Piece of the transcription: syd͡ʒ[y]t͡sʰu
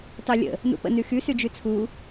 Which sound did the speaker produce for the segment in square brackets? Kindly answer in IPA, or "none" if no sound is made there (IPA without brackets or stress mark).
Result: y